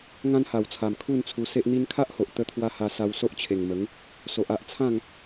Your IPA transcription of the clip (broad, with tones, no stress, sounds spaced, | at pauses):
ŋ ã˦ n h a˨˩ w t͡sʰ a˨˩ m kʰ u˥˧ n t͡sʰ u˧ s e˦ ʔ n̪ i˦ n kʰ a˦ ʔ h o˨ ʔ t̪ ə˧ t̪ʰ w a˧ h a˧ s a˧ w s o˦ ʔ t͡ɕʰ e˨˩ ŋ m ə˨˦ ŋ | s o˨ ʔ a˦ ʔ t͡sʰ ã˥˧ ŋ